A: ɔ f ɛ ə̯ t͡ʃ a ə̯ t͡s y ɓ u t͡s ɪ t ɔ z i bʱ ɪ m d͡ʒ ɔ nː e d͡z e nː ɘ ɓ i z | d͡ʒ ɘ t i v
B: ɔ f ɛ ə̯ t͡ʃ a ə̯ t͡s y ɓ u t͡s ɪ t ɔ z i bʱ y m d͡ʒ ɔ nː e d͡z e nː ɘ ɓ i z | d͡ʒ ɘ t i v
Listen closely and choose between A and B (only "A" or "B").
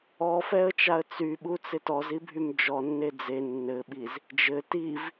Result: B